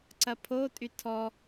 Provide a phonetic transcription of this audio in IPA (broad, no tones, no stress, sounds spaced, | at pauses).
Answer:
ǀ ɐ pʰ o tʼ y tʰ ɔ